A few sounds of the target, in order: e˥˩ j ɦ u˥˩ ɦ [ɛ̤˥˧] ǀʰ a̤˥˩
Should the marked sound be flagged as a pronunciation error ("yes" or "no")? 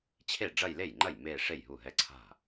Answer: yes